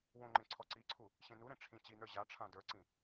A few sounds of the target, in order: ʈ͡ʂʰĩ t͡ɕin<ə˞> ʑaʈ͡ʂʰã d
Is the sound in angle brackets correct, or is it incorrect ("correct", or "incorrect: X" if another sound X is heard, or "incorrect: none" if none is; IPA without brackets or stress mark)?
correct